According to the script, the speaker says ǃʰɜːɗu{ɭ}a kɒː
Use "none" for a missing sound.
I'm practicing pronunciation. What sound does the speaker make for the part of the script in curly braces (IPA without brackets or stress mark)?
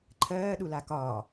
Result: l